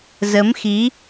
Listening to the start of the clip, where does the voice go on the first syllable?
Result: rising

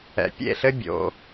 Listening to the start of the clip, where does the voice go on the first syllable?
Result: low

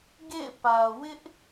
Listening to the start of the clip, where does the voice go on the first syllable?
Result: falling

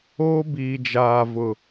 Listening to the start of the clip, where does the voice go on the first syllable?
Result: high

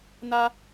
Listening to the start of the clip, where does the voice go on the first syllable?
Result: high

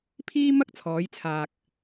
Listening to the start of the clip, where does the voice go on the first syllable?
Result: high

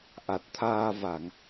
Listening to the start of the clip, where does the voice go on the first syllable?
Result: low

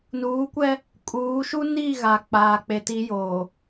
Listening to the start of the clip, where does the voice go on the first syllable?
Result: rising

